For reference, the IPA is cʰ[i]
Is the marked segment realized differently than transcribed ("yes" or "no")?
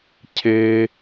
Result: yes